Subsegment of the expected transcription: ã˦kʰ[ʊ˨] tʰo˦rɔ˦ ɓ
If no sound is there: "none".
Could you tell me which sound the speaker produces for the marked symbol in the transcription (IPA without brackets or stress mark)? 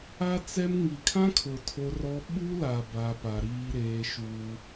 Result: ʊ˨